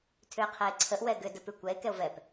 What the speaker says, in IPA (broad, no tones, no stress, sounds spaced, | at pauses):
tʰ ʏ e̯ qʰ ɛ e̯ ǀʰ ə ʔ w ɛ ɡ ʏ d ə p ʉ kʷ ɛ e̯ k ɛ o̯ v ɛ p